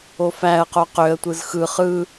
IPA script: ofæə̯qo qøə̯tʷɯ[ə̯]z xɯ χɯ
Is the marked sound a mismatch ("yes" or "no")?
yes